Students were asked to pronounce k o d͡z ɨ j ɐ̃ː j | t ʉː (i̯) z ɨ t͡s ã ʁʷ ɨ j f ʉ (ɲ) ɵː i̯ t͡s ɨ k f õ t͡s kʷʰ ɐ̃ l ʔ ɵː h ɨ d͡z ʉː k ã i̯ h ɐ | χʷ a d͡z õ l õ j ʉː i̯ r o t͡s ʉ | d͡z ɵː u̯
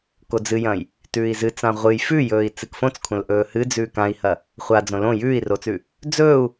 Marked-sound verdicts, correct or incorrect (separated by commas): correct, incorrect